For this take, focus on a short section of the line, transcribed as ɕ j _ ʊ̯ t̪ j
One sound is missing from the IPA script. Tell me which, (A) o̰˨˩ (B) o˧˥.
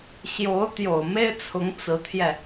B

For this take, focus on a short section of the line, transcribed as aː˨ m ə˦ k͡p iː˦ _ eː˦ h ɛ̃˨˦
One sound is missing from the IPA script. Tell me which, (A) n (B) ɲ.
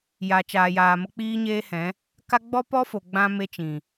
B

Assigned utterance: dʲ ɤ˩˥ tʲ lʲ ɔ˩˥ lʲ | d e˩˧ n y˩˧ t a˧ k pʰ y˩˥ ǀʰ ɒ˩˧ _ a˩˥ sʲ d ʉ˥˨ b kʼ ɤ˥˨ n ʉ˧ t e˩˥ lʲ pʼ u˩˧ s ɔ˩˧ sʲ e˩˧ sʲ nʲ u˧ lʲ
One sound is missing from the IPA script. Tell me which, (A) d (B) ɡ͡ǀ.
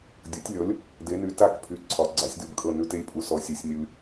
B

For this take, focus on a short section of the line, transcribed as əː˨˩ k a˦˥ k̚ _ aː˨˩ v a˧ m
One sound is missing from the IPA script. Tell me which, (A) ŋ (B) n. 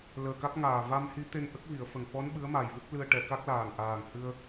A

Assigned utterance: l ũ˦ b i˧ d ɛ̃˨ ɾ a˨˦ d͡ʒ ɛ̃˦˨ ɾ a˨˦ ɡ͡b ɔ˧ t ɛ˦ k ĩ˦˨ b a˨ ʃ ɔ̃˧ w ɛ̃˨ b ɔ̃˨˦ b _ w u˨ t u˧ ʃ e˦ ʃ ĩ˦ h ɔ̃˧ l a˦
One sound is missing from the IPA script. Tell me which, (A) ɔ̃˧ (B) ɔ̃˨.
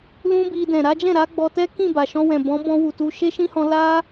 A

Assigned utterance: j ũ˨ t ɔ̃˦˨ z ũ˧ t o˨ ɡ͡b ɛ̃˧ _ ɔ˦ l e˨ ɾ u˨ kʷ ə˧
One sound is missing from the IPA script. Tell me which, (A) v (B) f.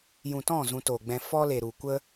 B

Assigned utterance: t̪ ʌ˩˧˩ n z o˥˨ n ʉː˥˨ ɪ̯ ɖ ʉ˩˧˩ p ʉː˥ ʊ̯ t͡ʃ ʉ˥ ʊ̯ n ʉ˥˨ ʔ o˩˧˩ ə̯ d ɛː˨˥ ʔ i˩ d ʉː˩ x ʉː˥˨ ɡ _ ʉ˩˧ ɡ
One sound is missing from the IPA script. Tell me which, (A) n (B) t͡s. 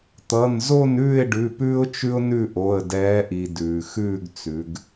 B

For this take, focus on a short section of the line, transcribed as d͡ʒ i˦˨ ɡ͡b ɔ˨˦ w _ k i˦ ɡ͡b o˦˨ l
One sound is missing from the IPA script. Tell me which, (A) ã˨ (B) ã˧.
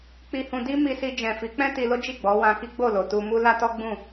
B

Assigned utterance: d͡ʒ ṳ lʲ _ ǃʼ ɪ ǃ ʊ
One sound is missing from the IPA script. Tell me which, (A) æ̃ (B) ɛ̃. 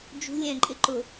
B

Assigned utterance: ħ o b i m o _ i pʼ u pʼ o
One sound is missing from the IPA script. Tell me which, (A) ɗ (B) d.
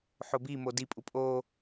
B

